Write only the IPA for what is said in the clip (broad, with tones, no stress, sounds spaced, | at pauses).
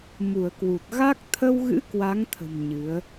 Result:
m u˧˩ ə̯ k w u˨˩ t̚ ɣ a˦˥ k̚ t̪ʰ ə˧ w ɣ ɨ̰˧˥ k w a˨˦ ŋ t̪ʰ ə̤˨˩ m ɲ ɨ˨˦ ə̯